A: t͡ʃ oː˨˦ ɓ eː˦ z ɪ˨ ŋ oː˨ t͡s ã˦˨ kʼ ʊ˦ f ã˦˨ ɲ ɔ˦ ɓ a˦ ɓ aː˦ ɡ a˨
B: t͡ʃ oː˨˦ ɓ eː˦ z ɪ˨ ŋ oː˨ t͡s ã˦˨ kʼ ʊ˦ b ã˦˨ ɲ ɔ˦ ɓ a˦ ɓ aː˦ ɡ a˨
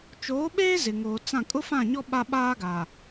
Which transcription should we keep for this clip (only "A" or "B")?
A